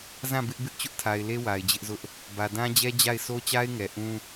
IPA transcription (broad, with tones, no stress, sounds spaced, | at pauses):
z ã˦˨ b ɪ˦ ʔ b ɪ˦ ʔ t͡ɕ ʊ˦ ʔ tʰ a˨ ɪ̯ l e˦ w a˨ ɪ̯ d͡ʑ ɪ˦ ʔ z ʊ˦ ʔ | b ä˨ d ã˦ d͡ʑ ɛ˦ d͡ʑ a˦˨ ɪ̯ sʰ o˦ t͡ɕ a˦ ɪ̯ ŋ ɛ˨ ʔ ũ˦